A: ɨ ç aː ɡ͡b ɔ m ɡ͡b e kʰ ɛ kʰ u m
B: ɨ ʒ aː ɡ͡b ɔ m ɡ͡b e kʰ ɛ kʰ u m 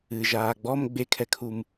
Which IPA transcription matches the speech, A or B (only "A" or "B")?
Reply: B